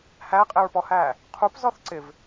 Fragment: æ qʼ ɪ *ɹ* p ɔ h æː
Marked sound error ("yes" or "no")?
no